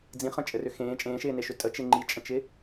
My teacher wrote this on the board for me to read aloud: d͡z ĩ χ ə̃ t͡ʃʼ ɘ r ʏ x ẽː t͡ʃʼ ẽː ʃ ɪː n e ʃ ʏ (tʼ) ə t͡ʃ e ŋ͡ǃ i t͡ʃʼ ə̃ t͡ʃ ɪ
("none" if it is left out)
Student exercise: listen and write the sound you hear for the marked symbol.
tʼ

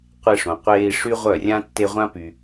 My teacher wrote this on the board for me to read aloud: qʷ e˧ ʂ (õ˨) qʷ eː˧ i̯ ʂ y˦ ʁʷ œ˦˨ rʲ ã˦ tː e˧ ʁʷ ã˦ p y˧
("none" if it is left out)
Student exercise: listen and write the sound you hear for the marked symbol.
õ˨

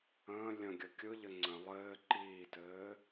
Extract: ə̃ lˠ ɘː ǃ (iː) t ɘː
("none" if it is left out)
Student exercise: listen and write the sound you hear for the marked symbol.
iː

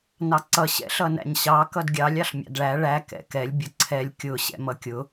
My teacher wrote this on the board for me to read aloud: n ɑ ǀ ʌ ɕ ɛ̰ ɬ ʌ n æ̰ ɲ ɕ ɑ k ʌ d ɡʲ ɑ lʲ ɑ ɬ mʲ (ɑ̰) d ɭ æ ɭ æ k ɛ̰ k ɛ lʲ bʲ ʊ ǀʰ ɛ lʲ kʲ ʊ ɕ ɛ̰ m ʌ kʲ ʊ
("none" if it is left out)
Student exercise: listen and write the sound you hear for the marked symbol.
ɑ̰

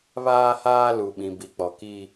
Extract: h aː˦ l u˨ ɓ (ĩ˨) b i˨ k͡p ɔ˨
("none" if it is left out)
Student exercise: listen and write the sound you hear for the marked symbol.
ĩ˨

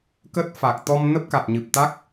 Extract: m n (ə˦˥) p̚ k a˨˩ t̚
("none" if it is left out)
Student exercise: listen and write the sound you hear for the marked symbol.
ə˦˥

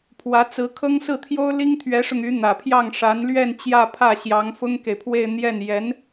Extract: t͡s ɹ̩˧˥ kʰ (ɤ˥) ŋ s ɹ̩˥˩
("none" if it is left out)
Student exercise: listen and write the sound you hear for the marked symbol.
ɤ˥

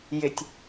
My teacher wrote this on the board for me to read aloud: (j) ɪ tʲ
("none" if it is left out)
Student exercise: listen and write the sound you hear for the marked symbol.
j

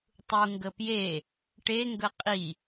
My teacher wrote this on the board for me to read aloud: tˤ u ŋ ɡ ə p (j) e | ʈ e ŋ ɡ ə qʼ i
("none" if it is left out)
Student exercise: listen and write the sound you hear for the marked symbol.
j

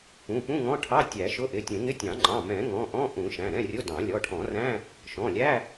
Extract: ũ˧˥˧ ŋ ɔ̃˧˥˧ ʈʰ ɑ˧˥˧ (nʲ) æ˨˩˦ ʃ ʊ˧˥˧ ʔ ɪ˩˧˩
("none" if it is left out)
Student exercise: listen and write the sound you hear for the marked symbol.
tʲ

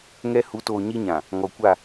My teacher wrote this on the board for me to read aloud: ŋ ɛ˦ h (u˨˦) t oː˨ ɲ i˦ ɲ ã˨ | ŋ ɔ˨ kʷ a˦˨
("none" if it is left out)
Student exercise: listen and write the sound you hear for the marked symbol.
u˨˦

